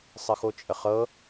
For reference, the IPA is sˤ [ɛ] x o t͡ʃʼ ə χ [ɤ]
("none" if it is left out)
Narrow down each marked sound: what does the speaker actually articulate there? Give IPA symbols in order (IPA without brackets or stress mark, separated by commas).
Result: ə, ɤ